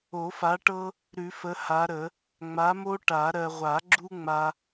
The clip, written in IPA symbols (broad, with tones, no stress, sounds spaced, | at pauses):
o˨˩˦ f a˨˦ ʈ ɤ˦ | ɾ ʉ˨˩˦ f ə˨˦ h a˨˦ ɾ ə˨˩˦ | ŋ͡m a˨˦ m o˦ ʈ a˨˩˦ ɾ ɜ˨ ʁʷ a˨˩˦ ɡ͡ǁ u˦ ŋ͡m a˦